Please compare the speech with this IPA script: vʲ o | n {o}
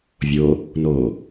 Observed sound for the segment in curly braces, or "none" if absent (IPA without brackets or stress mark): o